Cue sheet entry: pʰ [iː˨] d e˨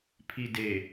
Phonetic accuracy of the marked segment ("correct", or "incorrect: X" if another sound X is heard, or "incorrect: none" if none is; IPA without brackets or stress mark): incorrect: i˨